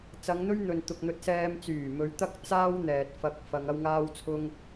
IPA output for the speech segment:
t͡sɐ˨˧ŋn̪ɵ˥ɥn̪ɵ˨n t̪ʊ˨k̚n̪ɵ˧t̚sɛː˧m t͡syː˨˩mɵ˨˧ɥt̪ɐ˥k̚ t͡saː˥wn̪ɛː˨t̚ fɐ˥k̚ fɐ˧ŋ ɐ˥wŋaː˥wt͡sʰʊ˥ŋ

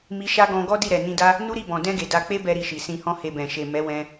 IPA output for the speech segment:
mi˧ʃa˦ɡɔ̃˧ ɡɔ˦ di˦˨ɾɛ˨nĩ˧da˦ | nu˦ɾi˦˨bɔ̃˨ dɛ̃˧ ɡe˨da˧ k͡pe˦bɛ˧ ɾi˧ʃi˨ sĩ˧hɔ̃˦he˧bɛ̃˨ ʃe˨mɛ˨˦wɛ̃˧

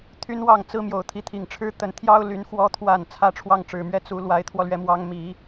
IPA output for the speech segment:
t̪ʰy˥nwɑ˥˩ŋt͡sɹ̩˥ mjo˨˩ʊ̯t̪ʰi˧˥t̪ʰi˨˩ŋʈ͡ʂʰɻ̩˥ t̪ə˧˥nt̪ʰjɑ˥ʊ̯ly˧˥n xwɔ˧˥t̪ʰwa˨˩n t͡sʰä˥ʈ͡ʂʰwɑ˥˩ŋʈ͡ʂɻ̩˨˩mɥɛ˥˩ t͡su˧˥ lwa˧˥ɪ̯t̪ʰwɔ˧lɥɛ˧˥mwɑ˧˥ŋ mi˨˩˦

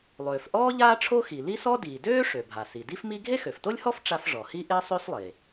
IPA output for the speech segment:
lˠøː˩fʔɔː˥ ʎaː˥ʈ͡ʂʰo˥xi˩li˥ sɔ˥diː˩ døː˥ ʂø˩bʱa˩si˩ di˥fmi˥ ɡʱe˥xø˩fto˥lʲhɔ˥f ʈ͡ʂa˥f ʐɔ˩hi˥ ʔe˥sˤø˥slˠe˩

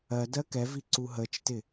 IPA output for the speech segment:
ɜ dɜkɛvi ǀuɦət͡ʃtɪ

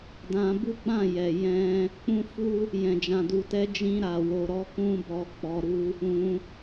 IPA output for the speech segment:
dã˧bu˦ɡ͡bã˦˨jɛ˨ jɛ̃˧ | k͡pũ˦fu˦ | jɛ̃˨d͡ʒã˨du˨tɛ˧ d͡ʒĩ˧ɾa˨ wo˨ɾɔ˨˦ kũ˧bɔ˨ k͡pɔ˨ɾu˧ | ũ˧

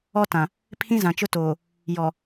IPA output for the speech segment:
ɔ˦tã˨ | pʰĩ˦zã˨t͡ʃʊ˦toː˨ | jɔ˨

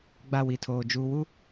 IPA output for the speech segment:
ɡ͡ba˦˨wi˨tʰoː˨ d͡ʒuː˨wu˦

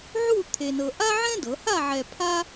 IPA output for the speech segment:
ʕu˥˧ t̪ʰe˧nɤ˧ ʔa˥ʕɛ̃˥dɤ˩˧ha˥˧ ʕɛ˧pʰa˥

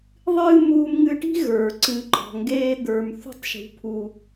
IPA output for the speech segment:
ðˤɨː˦ muː˧mŋɨ˧ʈi̤˦ ɣə˞˨ǀɨ˨˦ǃɔ̤˨ ŋɡeː˦d̪ə˞˧m θṳ˦tˤʃṳ˧pʰu˧

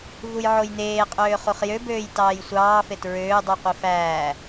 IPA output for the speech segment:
vujʕojneːqʼøː χuχjøbøːj tɑːjsʷɑːfet ɹøːdˤyqʷi fæː

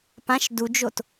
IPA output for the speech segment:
pãʃ dud͡ʒot

